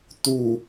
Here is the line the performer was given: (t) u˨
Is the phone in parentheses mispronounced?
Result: no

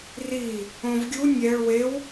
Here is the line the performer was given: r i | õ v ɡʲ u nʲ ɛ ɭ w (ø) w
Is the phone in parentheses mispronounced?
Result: yes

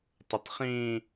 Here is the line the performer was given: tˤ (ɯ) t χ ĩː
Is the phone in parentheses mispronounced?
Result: yes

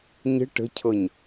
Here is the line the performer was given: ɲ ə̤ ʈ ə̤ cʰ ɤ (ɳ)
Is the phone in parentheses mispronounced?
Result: yes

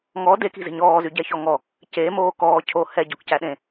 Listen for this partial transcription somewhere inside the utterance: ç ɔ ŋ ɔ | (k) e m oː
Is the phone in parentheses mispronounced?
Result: yes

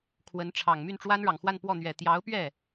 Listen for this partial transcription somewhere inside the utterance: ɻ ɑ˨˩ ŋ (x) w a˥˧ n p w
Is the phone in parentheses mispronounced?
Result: no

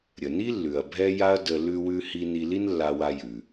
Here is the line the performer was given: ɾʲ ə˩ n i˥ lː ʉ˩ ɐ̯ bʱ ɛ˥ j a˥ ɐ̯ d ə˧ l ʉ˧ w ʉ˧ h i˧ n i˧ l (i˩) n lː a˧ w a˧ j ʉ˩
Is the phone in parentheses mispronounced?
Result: yes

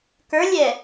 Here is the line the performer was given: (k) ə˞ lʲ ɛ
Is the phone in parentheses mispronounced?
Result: no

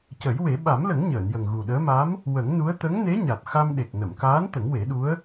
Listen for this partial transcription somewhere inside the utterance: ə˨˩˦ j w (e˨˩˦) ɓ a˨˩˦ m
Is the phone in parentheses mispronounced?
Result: no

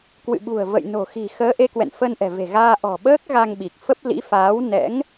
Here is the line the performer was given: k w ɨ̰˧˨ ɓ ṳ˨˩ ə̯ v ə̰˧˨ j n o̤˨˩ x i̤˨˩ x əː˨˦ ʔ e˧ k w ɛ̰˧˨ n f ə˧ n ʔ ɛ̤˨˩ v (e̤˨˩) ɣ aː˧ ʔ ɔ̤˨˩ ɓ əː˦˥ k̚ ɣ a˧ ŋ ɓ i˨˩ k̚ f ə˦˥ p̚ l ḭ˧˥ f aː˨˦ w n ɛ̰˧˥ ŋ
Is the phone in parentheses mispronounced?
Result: no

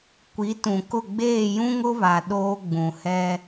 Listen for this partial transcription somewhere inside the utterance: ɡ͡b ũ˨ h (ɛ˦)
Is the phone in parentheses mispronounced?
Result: no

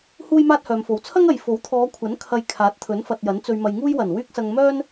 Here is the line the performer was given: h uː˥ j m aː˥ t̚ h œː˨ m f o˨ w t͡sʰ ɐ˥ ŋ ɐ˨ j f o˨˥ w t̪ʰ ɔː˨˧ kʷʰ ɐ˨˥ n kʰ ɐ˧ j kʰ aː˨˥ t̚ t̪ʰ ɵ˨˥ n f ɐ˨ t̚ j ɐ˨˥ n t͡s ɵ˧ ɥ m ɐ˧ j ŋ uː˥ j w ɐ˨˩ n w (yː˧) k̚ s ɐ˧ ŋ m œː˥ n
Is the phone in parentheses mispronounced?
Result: yes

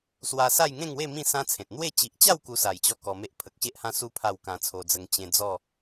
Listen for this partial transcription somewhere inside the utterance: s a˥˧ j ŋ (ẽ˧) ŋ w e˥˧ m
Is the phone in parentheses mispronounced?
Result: yes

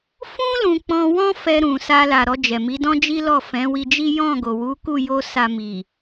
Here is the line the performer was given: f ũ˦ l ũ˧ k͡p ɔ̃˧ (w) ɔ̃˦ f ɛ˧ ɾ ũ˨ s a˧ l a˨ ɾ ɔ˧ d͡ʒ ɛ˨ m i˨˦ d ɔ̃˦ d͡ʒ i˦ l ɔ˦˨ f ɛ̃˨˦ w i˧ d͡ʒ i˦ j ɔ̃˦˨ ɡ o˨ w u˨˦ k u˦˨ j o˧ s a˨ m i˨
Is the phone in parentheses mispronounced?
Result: no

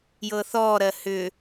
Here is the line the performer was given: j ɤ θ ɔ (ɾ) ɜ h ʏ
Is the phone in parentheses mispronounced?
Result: no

